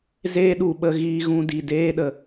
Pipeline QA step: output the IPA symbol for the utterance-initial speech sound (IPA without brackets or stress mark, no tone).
z